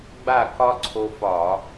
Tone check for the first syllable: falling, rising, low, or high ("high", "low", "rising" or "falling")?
falling